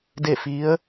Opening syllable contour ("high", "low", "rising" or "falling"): falling